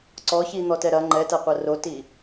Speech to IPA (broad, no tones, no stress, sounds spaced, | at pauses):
ǀ ɔ ç i n̪ ɔ t ɛ ɾ ɐ ŋ͡ǃ ɛ t ɐ qʷ ɐ r o t i